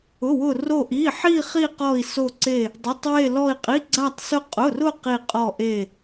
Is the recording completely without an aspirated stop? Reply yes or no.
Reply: yes